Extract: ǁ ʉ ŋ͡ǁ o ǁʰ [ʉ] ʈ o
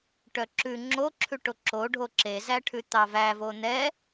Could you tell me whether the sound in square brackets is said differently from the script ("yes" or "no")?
no